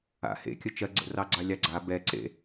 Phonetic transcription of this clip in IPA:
a̰ h ḛ kʲ ə t͡ʃ ɜ ɡ͡ǀ ə̰ r ɑ ɡ͡ǀ ɑ lʲ ɑ ɡ͡ǀ a b ɛ ǀ ḛ

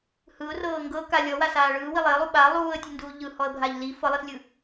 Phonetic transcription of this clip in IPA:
h ɯ ʊ̯ r ɤː ŋ ɡ ɤ k a lʲ ɔ w a s aː ɭ ɯː w i lˠ e ə̯ lˠ u ɓ a lˠ uː ə̯ tʲ ɯ n d uː ʎ ɯ h ɔ ə̯ bʱ a ʎ l i f ɤ lˠ i s lʲ ɯ

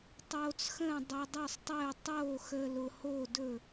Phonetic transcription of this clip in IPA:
tˤ oː˧ t͡s x ə̃ː˥˨ dˤ œ˧ dˤ œ˥˨ sˤ tˤ ɛ˥˨ u̯ tˤ oː˥˨ x əː˧ l ʊ˧ h oː˥˨ d ɵ˥˨

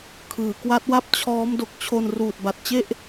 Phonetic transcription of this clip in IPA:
kʰ ɯː˩˦ k w a˦˥ t̚ w a˥˩ p̚ t͡ɕʰ ɔː˦˥ m d o˨˩ k̚ t͡ɕʰ o˧ n r uː˨˩ t̚ b a˨˩ t̚ t͡ɕ e˥˩ ʔ

